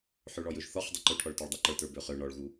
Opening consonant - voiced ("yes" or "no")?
no